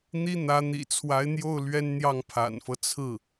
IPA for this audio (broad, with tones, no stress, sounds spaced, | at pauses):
n̪ i˥ n̪ ä˧˥ n̪ ḭ˨˩ t͡sʰ w a˧˥ ɪ̯ n̪ j o˥˩ ʊ̯ l ɥ ɛ˥ n n̪ j ɑ˥˩ ŋ pʰ a̰˨˩ n f ɤ˦ t͡sʰ ɹ̩˥˩